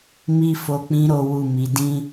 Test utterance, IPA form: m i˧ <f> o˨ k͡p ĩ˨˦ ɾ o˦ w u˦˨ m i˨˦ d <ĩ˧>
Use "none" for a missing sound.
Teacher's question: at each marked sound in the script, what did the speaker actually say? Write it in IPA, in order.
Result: f, ĩ˧

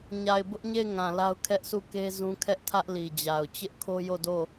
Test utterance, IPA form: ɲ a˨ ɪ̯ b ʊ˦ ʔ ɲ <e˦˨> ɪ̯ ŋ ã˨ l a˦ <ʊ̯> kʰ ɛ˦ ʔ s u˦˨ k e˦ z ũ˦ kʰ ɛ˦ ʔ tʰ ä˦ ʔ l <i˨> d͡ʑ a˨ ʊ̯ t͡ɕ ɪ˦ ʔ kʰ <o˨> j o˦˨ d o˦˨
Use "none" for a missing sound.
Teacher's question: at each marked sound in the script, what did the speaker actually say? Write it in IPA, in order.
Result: e˦˨, ʊ̯, i˨, o˦

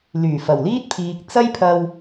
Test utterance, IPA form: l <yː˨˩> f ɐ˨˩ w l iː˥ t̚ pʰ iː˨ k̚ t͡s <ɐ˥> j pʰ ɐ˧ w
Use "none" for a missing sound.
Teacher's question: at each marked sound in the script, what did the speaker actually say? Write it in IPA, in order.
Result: yː˨˩, ɐ˥

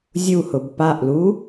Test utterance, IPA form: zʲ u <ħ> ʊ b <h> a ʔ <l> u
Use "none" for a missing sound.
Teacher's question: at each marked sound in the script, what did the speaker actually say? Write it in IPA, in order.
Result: h, p, l

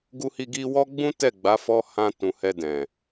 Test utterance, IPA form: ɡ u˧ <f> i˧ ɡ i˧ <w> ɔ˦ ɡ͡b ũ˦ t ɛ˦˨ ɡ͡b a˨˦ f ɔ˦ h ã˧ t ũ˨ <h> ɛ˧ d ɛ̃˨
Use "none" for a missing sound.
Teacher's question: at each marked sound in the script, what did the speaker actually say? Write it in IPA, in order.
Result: h, w, h

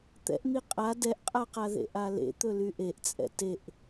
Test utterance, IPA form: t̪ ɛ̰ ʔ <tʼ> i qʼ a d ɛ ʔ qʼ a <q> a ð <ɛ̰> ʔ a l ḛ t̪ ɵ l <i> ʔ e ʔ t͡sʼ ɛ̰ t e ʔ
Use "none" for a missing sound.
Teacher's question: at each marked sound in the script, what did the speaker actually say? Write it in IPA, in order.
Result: n̪, q, ḛ, y

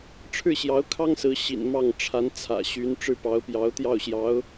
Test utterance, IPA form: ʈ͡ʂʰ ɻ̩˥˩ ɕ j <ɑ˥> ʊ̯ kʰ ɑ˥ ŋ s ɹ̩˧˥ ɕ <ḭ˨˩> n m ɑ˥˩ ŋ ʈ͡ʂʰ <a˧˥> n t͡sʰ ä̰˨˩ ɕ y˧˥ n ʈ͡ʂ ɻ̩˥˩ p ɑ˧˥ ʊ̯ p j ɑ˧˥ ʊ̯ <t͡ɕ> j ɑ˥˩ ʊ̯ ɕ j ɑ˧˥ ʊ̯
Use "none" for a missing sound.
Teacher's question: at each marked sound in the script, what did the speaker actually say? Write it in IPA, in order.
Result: ɑ˧˥, ḭ˨˩, a˧˥, t̪

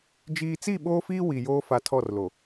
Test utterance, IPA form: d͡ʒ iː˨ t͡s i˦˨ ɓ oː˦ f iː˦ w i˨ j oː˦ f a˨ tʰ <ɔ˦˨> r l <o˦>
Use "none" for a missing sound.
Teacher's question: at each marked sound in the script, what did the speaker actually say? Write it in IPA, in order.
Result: ɔ˦˨, o˨

